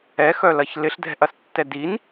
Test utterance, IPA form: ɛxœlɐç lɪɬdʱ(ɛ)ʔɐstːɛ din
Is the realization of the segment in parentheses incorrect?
yes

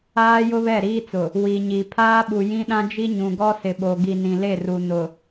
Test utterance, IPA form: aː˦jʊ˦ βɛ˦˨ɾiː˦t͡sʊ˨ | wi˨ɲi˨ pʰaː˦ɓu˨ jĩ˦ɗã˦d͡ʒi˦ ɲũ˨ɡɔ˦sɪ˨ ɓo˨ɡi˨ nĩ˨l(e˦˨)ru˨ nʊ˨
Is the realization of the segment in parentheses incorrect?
no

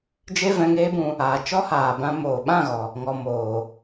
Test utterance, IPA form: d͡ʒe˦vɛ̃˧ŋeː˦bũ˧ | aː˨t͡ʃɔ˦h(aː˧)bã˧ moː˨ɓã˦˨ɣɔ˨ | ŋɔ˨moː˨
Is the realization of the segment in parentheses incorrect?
yes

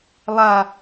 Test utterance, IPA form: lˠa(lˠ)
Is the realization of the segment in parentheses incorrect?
yes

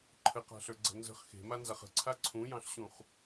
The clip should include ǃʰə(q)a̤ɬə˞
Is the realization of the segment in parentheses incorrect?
no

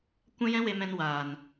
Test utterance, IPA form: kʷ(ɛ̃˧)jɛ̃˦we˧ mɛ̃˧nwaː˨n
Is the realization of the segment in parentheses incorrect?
yes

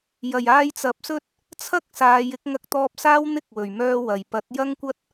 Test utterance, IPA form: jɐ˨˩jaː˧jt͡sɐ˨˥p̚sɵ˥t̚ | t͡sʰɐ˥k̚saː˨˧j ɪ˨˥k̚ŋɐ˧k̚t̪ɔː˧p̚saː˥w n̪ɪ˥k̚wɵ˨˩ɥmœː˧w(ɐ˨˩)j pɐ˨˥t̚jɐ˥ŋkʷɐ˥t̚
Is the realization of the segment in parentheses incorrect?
no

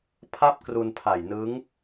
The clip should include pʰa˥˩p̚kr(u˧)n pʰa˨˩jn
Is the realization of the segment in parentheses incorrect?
no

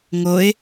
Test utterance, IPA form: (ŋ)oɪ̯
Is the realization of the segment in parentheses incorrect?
no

